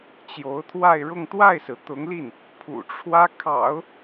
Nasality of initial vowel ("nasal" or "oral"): oral